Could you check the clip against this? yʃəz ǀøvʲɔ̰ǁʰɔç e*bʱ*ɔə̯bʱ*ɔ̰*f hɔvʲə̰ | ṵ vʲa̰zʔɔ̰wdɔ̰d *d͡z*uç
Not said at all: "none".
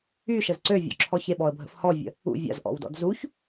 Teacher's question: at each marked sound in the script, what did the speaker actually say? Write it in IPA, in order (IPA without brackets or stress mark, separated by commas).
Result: ɓ, ə̰, z